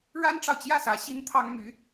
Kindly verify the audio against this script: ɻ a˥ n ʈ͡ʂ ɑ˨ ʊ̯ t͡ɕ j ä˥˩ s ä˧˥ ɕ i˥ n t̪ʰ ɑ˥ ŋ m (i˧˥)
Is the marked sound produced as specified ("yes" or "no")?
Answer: no